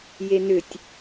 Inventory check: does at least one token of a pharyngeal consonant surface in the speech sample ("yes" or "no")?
no